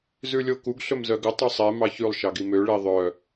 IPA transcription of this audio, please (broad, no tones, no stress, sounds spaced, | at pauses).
z ʉ lʲ o k u ɡ ɬ ɵ m z œ ɡ ɵ tˤ u sˤ e m ɑ ç ʉ lˠ ʃ ɑ ɡ i m ø ɭ i ðˤ œ